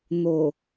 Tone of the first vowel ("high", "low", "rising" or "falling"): low